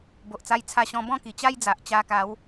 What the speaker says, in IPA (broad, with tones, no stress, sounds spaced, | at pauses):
b o˨ ʔ t͡s a˧ j t͡sʰ a˧ ɕ ɔ̃˧ b ɔ̃˥˧ k i˨˩ t͡ɕ a˦ j d͡z a˨ ʔ t͡ɕ a˧ k a˨˦ w